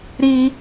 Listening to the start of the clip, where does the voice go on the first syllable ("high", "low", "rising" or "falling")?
high